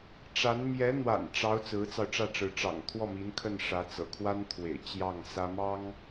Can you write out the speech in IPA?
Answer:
ʈ͡ʂ a˧˥ n m j ɛ˧˥ n̪ w a̰˨˩ n ʈ͡ʂ ɑ˧˥ ʊ̯ t͡s ɹ̩˧˥ t͡s ɑ˧ ʊ̯ ʈ͡ʂ ä˥˩ ʈ͡ʂ ɻ̩˧˥ ʈ͡ʂ ɑ̰˨˩ ŋ t̪ʰ w ɔ˥˩ m i˧˥ n kʰ ə˥˩ n ʂ ä˧˥ t͡s ɤ̰˨˩ kʰ w a˥ n t̪ʰ w ḛ˨˩ ɪ̯ t͡ɕ j ɑ˥˩ ŋ s ä˥ m ɑ˥ ŋ

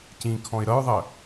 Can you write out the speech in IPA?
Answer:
c ĩ kʰ ɔ̃ ɪ̯ ɾ ʌ ɹ ðˤ ɜ

